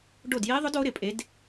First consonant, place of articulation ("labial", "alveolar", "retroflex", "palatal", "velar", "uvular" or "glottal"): retroflex